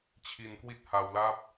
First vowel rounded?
no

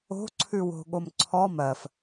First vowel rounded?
yes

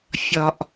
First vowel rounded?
yes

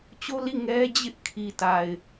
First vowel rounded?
yes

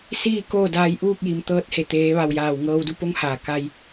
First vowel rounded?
no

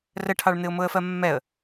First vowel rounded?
no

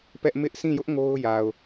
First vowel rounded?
no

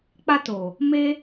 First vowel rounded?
no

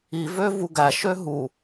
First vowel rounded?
no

